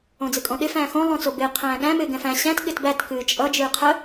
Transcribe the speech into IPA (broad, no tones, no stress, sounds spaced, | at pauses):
õ d͡z ɨ kʼ õ ɗ ɪ f æ̃ː x õ lˠ õ t͡s o b ɪː qʰ æ̃ː ɠ æ̃ m ɪː ɡ ɛ̃ f æ̃ ɕ æ̃ t ɠ ɪ t b æ t k ɨː t͡ʃʼ ʌ d͡ʒ ɨː qʰ ə